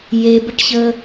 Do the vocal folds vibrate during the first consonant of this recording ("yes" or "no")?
yes